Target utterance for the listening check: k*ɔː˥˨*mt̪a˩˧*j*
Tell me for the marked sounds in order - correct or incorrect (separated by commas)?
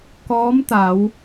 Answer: incorrect, incorrect